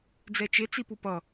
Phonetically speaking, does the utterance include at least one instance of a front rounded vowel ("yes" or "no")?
no